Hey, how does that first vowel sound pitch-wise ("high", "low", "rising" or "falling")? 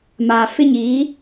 low